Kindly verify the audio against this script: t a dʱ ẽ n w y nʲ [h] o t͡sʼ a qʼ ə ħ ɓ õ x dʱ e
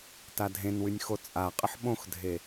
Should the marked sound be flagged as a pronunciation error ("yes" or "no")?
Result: yes